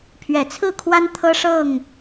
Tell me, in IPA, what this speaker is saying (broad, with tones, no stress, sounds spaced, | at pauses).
pʰ ɥ ɛ˨˩ t͡sʰ ɹ̩˥˨ kʰ w a˦ n t̪ʰ ɤ˦ ʂ ɤ˥˨ ŋ